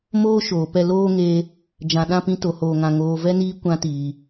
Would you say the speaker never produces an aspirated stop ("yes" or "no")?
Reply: yes